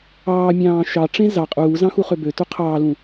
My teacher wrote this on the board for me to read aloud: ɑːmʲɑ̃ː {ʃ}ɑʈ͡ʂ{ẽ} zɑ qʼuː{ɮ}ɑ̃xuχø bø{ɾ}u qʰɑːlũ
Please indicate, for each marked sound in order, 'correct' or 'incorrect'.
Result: correct, correct, incorrect: z, incorrect: t

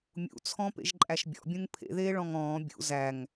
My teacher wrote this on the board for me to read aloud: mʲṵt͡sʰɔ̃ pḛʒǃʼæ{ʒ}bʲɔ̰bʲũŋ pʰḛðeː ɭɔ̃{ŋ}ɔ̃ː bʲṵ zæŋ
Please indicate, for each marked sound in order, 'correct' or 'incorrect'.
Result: incorrect: ʃ, correct

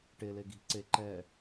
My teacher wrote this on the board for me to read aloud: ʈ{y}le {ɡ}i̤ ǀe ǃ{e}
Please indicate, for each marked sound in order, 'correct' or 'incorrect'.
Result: incorrect: e, correct, incorrect: ɛ

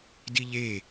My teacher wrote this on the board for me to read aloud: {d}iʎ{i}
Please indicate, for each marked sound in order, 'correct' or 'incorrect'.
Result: correct, incorrect: e

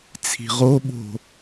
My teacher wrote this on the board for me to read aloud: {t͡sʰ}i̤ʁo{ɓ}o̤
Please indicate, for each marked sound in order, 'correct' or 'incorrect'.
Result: correct, correct

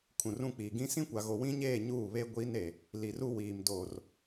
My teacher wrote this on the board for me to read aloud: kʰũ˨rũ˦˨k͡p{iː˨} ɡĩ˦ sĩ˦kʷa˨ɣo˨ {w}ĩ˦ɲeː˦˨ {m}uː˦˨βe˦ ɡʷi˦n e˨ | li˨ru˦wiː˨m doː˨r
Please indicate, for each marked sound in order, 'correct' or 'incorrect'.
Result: correct, correct, incorrect: ɲ

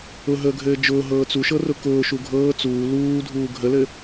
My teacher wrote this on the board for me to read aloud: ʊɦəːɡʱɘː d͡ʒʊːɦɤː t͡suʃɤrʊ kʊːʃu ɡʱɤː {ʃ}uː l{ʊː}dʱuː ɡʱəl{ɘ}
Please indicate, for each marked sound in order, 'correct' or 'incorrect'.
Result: incorrect: t͡s, incorrect: uː, correct

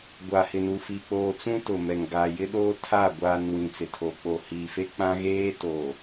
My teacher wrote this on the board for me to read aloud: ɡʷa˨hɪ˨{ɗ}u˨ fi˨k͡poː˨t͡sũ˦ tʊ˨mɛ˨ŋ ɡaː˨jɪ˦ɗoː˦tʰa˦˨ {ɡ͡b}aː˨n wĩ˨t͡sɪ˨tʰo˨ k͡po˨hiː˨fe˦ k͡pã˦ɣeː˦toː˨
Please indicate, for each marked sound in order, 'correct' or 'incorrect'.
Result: incorrect: n, incorrect: ɡʷ

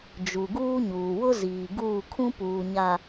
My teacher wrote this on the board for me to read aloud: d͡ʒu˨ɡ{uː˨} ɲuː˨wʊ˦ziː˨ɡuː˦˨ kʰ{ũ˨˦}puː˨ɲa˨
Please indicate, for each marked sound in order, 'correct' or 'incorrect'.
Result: incorrect: uː˦, incorrect: ũ˦

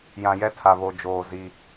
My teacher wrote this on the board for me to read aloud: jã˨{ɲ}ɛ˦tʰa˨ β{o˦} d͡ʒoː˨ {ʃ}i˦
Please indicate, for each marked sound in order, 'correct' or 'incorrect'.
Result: incorrect: j, incorrect: o˨, incorrect: z

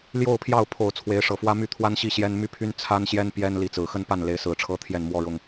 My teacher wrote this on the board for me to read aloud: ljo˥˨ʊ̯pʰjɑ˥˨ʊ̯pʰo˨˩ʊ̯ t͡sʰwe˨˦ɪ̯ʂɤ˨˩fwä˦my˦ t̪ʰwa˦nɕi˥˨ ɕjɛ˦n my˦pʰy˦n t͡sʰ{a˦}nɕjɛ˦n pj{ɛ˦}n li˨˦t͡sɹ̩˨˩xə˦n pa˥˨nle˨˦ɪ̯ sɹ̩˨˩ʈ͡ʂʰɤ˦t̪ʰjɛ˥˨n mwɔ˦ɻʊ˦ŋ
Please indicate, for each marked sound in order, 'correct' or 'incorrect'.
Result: correct, correct

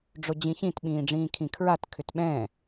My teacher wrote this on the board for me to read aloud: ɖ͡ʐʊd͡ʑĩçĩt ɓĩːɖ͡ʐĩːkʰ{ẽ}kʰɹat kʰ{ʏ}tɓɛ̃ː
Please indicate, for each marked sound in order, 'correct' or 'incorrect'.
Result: incorrect: ĩ, correct

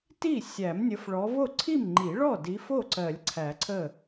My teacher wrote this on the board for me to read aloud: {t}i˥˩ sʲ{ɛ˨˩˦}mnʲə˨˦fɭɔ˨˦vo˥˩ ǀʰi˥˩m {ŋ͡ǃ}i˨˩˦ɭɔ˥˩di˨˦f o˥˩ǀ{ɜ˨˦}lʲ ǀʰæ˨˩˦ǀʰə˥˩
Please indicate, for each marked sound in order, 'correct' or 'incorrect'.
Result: correct, incorrect: æ˨˩˦, correct, incorrect: ɜ˨˩˦

